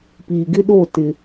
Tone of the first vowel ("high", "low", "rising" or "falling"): low